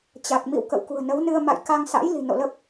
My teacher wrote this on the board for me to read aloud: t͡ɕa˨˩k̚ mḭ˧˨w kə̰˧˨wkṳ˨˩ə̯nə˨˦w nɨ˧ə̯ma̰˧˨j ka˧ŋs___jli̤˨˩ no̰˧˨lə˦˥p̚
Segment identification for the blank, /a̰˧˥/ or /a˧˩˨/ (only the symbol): a̰˧˥